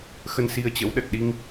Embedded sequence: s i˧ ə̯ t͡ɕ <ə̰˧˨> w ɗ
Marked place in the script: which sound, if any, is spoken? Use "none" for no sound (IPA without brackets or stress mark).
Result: ə̰˧˥